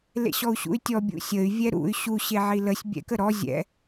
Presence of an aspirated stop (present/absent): absent